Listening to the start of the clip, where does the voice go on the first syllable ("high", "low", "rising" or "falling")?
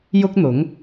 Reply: high